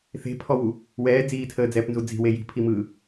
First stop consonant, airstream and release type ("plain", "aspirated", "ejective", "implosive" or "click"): aspirated